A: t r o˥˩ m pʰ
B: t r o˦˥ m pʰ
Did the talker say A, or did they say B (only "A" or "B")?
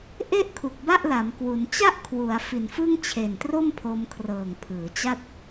A